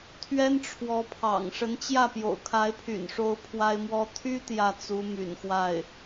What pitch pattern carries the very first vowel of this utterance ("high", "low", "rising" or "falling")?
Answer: high